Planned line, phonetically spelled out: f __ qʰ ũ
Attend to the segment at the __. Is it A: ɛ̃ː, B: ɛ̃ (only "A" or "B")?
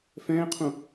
A